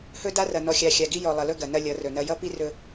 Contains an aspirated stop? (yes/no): no